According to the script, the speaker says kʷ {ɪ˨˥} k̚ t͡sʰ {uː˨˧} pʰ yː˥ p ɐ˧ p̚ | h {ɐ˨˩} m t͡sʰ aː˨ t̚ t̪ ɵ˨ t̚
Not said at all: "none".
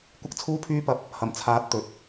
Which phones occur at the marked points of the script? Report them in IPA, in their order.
ɪ˥, uː˥, ɐ˨˩

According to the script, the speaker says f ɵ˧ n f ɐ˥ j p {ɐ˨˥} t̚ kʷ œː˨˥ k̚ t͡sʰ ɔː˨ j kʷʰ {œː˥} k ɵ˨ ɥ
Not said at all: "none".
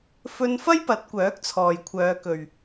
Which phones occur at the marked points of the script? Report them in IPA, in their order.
ɐ˨˥, œː˨˧

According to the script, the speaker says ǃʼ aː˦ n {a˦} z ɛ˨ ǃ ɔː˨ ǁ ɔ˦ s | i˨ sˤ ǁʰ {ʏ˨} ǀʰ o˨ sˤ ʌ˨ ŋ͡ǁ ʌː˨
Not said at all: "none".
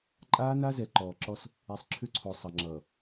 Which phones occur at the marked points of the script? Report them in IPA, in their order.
a˦, ʏ˦

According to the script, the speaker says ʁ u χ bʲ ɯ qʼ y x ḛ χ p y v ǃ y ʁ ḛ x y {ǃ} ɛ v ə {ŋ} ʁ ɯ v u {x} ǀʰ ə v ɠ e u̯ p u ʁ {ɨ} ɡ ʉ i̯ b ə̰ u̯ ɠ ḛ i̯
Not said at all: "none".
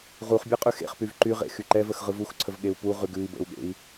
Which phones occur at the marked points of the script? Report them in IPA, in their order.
ǃ, x, x, ʉ

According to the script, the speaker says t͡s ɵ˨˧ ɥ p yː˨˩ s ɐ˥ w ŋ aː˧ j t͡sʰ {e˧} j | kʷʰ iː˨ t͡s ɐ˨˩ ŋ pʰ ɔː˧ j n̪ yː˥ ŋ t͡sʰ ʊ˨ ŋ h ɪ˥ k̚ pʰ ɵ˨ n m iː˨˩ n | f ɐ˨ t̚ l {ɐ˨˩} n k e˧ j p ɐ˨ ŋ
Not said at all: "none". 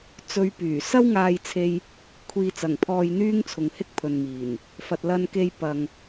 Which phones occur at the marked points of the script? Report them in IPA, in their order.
e˧, ɐ˧

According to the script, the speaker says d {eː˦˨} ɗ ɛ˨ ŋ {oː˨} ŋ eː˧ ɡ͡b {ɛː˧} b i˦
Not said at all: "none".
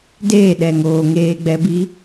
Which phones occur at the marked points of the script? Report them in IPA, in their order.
eː˦˨, oː˨, ɛ˧

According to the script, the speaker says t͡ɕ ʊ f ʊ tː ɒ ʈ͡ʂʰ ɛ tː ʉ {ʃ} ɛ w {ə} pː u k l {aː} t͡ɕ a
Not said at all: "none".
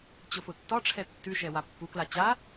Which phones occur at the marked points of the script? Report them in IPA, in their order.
ʃ, a, a

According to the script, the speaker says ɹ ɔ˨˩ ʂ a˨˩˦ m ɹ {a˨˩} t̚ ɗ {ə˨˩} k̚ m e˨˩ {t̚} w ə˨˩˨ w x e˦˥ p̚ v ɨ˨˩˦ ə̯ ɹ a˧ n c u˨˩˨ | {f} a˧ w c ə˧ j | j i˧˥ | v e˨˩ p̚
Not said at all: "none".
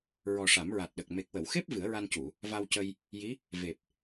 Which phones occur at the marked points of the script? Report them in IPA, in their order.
a˨˩, ə˨˩, k̚, v

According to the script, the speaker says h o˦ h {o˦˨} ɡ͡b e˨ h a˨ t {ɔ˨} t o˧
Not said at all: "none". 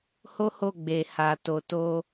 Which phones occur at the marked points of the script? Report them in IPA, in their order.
o˦˨, o˨

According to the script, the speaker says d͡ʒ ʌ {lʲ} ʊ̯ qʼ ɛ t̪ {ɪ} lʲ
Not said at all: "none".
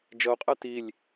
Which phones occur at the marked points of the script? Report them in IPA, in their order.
none, i

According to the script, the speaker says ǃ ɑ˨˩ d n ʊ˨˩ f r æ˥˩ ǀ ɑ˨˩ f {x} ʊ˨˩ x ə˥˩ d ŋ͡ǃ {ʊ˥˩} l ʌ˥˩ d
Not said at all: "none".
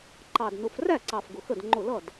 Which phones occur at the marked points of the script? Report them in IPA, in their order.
ɡ, ʊ˥˩

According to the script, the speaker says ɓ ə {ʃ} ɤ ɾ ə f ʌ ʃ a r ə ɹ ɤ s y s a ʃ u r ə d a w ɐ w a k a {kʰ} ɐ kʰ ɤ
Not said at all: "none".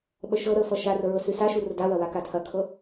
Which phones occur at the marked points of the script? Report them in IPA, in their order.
ʃ, tʰ

